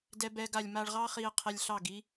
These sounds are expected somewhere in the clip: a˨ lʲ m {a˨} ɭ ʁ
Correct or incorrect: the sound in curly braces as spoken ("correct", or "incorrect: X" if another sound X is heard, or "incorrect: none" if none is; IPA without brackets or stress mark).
incorrect: a˧